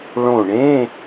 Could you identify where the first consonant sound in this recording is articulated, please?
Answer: retroflex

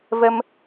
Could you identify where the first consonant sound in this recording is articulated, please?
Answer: labial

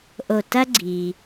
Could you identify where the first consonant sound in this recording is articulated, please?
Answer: glottal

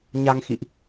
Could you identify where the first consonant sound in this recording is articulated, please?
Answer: palatal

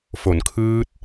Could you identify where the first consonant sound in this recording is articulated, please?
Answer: labial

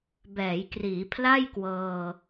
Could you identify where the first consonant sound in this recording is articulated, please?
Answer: labial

